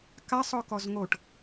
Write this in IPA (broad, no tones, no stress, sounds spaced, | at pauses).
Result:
k a sˤ ɔ k ɔ z ŋ o ʈ